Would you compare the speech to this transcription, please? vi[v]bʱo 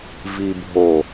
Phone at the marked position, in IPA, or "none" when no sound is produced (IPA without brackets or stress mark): none